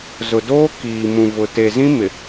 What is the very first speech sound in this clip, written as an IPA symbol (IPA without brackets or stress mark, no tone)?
z